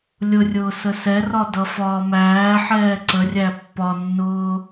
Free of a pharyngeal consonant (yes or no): no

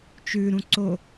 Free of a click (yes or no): no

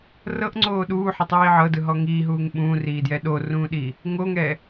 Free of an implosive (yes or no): no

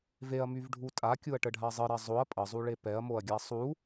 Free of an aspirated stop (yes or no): yes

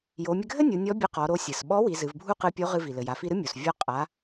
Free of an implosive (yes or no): no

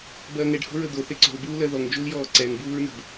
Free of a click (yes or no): no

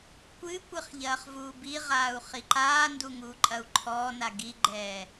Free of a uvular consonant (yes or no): no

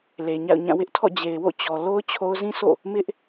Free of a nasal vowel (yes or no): no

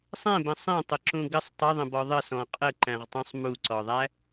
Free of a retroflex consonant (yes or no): yes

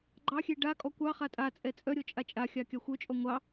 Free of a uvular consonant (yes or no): no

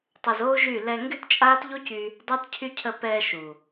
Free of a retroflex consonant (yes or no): yes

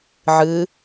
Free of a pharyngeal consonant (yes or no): no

